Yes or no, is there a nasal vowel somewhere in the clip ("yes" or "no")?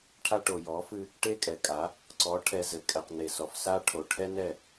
no